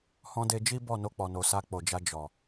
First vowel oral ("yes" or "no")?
no